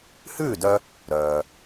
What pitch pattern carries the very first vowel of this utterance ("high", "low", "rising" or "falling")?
falling